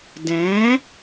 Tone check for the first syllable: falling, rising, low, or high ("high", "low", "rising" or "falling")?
rising